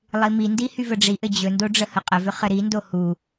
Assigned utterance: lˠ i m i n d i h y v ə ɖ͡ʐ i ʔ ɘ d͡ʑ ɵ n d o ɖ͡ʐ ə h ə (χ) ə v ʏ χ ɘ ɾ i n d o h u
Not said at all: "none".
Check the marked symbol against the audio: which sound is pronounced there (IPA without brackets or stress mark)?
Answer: qʼ